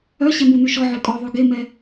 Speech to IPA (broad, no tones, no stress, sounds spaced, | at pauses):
œ ɕ ɛ m u n y ʃ ɔ ʕ ø kʼ ɔ ðˤ ʉ ɡ e m ɛ